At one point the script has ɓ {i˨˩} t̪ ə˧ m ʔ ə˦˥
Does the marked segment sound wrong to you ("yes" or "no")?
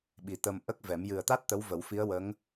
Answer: no